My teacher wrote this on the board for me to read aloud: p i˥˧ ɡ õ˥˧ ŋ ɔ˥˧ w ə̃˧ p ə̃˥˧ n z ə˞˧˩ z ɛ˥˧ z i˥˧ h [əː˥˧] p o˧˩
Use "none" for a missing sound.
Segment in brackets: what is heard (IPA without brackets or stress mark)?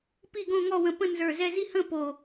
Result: ə̃ː˥˧